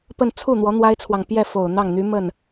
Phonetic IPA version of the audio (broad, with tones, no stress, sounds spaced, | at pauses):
p ə˥˧ n t͡sʰ u˥˩ n̪ w ɔ˧˥ n̪ w a˥ ɪ̯ t͡sʰ w ɑ˨ ŋ p j ɛ˥˩ f o˨˩ ʊ̯ n̪ ɑ˥˩ ŋ n̪ y˧˥ m ə˥˩ n